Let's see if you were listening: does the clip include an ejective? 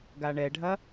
no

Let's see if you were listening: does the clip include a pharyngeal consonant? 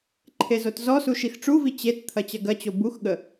no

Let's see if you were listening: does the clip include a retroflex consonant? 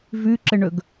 yes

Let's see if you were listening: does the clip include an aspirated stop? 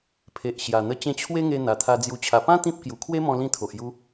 yes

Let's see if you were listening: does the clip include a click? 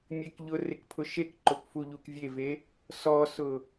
yes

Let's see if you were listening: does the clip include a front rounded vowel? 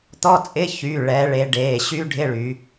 yes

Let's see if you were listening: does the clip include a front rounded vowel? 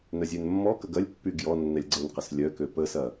yes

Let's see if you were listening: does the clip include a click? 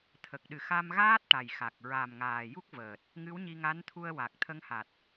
no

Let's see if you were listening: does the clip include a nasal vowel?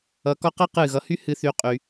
no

